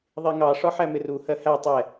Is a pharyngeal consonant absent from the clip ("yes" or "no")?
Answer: no